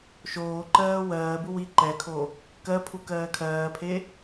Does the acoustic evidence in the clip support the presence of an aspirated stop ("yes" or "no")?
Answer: yes